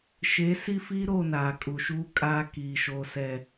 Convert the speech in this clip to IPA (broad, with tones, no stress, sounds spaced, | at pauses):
ʃ e˨˦ s i˦ f i˦ ɾ o˦˨ n aː˨ kʼ u˨ ʃ uː˦ kʼ aː˦ k iː˨ ʃ oː˨ s ɛ˨